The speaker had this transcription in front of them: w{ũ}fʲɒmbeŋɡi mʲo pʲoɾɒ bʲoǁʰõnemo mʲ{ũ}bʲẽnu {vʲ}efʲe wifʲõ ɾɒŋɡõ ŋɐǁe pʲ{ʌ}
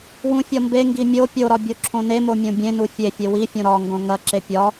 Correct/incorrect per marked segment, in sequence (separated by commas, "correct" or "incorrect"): correct, incorrect, incorrect, incorrect